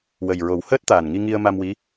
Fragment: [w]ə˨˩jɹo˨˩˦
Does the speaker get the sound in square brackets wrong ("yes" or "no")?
no